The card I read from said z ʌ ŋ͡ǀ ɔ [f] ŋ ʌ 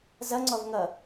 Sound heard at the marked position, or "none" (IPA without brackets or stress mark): v